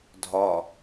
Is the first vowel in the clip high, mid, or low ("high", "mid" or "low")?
low